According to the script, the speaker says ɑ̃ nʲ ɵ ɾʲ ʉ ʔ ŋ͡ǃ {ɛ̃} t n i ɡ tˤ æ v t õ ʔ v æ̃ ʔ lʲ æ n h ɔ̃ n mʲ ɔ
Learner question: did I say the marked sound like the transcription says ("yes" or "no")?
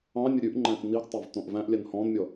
no